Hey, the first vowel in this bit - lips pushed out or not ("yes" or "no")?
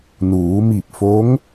yes